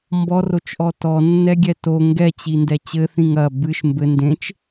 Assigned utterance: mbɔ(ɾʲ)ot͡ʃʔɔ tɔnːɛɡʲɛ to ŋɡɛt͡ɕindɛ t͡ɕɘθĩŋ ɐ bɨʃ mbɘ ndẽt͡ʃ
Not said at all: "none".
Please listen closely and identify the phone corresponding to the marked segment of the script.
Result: r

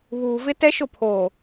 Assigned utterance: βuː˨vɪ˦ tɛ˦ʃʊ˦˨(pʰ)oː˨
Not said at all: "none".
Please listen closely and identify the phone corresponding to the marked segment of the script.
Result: pʰ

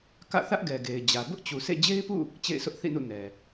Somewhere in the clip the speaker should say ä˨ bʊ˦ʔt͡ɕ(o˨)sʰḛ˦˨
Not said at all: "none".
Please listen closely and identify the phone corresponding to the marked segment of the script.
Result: u˨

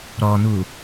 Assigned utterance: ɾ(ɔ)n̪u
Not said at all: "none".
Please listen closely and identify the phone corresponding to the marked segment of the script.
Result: ɔ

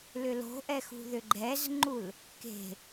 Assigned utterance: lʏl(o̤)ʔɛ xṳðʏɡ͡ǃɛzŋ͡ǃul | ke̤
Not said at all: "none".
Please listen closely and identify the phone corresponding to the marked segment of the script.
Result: o̤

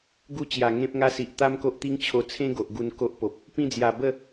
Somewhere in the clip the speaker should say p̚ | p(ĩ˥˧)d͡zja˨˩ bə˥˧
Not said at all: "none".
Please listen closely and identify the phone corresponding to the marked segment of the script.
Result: ĩ˥˧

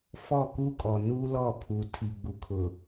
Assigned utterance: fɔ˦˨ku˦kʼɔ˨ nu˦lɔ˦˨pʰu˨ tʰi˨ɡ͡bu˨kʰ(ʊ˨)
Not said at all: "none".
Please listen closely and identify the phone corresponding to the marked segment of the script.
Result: ʊ˨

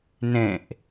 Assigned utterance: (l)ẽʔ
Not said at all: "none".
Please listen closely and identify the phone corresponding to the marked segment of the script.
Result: n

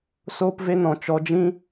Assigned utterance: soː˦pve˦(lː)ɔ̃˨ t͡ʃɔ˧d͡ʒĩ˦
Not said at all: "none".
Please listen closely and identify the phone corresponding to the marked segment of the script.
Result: n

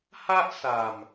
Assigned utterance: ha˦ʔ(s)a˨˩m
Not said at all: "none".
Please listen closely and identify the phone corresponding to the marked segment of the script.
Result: s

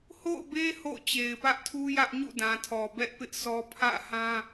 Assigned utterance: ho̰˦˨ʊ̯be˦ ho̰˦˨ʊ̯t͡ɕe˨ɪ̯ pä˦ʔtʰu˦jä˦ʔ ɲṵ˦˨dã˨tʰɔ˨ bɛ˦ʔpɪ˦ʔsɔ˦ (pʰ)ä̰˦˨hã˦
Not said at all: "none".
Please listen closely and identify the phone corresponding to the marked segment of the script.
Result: pʰ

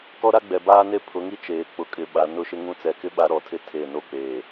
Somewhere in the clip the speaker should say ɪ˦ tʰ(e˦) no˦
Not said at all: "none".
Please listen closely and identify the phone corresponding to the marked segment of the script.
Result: e˦˨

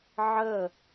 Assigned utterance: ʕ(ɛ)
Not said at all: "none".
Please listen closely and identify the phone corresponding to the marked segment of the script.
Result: ə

